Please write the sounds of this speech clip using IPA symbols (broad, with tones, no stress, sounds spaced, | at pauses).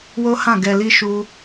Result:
w o˦ h ã˦˨ ɡ ɛ˨ l i˧ ʃ u˧